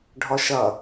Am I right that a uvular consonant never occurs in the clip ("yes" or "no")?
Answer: yes